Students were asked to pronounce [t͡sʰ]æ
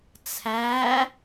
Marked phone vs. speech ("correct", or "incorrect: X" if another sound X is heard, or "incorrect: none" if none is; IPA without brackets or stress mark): correct